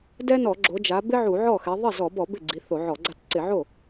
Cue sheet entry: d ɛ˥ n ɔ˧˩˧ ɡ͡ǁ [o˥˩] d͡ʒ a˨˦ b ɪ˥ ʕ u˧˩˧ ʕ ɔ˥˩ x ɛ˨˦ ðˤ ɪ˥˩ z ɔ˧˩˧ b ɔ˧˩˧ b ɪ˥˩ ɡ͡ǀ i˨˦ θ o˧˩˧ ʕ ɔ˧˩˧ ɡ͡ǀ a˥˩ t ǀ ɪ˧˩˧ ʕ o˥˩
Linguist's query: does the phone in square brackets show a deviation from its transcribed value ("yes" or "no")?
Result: yes